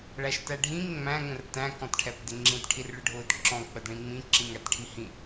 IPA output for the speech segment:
ɭæʃtæɖʱĩŋ ŋ͡mæ̃ ŋə̃rtæ̃ kɔ̃tʈʰɛpdɪŋ͡ǁĩt ʈʰirɭəɖʱʊːdǁɔ̃ k͡pədɭĩŋ͡mĩ ǁĩŋætʈʰihĩ

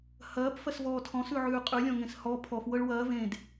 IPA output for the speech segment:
hɐːp fɐsvɔːtʰɔ̃ sʉʕʉːqʼʉ lʲɔ̃ŋẽshɔ pʰɔf wɤɭwɐː vẽd

